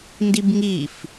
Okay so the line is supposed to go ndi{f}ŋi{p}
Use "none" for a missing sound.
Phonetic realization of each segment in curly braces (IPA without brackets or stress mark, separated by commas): b, f